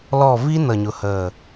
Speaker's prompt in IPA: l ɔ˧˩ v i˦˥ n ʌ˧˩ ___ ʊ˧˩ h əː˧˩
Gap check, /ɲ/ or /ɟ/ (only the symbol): ɲ